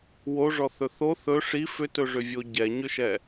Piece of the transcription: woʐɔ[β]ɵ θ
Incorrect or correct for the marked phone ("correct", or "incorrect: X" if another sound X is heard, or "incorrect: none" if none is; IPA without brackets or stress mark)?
incorrect: θ